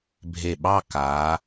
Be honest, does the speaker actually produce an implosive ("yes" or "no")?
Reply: yes